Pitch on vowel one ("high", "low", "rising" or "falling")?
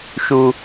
high